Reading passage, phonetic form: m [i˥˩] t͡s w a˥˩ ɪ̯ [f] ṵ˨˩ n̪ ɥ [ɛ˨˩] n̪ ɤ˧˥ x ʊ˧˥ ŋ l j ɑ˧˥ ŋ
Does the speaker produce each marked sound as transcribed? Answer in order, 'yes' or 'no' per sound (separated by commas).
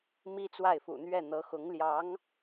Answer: no, yes, no